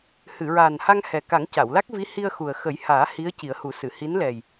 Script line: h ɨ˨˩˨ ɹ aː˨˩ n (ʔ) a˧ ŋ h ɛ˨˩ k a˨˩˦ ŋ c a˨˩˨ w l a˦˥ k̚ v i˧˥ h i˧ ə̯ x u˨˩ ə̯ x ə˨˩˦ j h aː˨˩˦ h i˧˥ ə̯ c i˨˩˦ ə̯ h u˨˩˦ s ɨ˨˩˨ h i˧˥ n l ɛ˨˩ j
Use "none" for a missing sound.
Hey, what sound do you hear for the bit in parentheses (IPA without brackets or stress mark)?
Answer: h